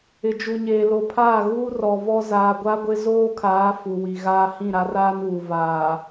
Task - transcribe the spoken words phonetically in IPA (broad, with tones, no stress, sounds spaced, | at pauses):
ɪ˨ d͡ʒ u˨ ɲ eː˨ l o˨ pʰ aː˦˨ ɣ uː˦ r ɔ˨ v ɔ˦ z aː˨ ɡʷ a˦ ɡʷ ɪ˦ z oː˦ kʰ aː˨˦ f u˨ w i˨ ɣ aː˦ h ĩ˦˨ ɾ a˦ r aː˦ n uː˨ v aː˨